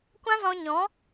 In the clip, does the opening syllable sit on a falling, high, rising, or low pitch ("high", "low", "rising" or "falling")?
high